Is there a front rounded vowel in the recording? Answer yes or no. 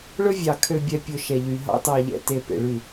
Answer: yes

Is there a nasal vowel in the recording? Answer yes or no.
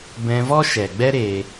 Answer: yes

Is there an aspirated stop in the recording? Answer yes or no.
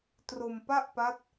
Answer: no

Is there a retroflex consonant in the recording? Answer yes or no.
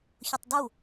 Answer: no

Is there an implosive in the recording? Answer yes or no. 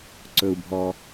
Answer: no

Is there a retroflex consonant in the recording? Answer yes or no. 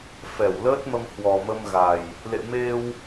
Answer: no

